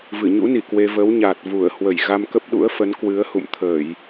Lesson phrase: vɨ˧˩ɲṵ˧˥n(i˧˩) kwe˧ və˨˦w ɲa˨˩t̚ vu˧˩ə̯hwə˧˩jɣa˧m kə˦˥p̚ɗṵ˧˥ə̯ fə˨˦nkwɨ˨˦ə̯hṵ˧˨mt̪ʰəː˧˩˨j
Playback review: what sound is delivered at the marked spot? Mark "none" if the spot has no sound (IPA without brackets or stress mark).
i˧˩